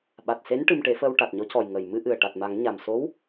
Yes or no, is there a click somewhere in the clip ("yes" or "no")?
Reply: no